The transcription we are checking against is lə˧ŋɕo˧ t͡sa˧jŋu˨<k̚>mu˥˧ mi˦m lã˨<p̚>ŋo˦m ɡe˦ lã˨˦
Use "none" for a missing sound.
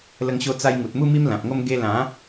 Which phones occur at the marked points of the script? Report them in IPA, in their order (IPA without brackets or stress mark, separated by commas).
t̚, p̚